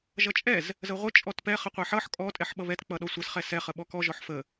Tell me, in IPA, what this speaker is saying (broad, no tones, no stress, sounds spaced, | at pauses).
ʒ ʌ t͡ʃʼ ɛ z | z ə ʁʷ ə t͡ʃʼ ɔ t p ɛ χ ə qʷ ɛ ħ ʌ ħ kʼ ɔ tʼ ɛ ħ ɓ ʌ β ɛ t k͡p ʌ ɗ ɔ sʷ ə s χ ɛ s ɛ χ ə ɓ ɔ k ɔ ʒ ɔ ħ f ə